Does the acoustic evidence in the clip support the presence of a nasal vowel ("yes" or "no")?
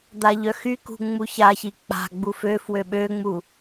no